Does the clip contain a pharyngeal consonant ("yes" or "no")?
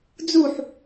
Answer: yes